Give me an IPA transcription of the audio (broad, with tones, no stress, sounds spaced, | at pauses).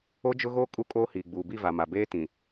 o˦ d͡ʒ ʊ˦ ɣ oː˦ kʼ u˦ kʼ oː˦ h iː˨ ɡ͡b uː˨ b i˦˨ v a˨ m a˨ b eː˦ t ĩ˨